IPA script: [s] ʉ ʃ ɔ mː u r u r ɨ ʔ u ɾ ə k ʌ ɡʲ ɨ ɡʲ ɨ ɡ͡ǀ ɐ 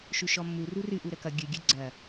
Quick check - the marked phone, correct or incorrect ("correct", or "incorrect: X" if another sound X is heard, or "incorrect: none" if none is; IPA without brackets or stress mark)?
incorrect: ʃ